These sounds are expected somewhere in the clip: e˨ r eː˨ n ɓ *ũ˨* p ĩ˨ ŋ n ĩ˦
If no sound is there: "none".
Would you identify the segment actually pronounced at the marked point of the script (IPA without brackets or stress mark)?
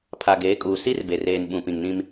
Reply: ũ˨